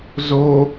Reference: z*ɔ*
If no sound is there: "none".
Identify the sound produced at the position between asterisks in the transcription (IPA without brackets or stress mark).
o